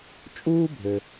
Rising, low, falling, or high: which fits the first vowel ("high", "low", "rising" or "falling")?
high